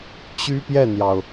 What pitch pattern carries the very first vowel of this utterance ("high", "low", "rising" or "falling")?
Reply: high